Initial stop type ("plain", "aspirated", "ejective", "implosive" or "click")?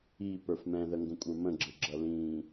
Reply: plain